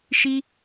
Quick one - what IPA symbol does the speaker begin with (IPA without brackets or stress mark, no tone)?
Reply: ʃ